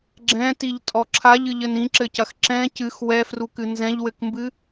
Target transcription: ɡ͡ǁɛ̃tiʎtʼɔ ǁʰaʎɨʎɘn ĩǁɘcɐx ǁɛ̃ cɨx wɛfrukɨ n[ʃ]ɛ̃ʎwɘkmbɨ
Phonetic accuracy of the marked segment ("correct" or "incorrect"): incorrect